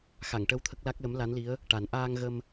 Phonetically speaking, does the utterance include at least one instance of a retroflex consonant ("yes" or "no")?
yes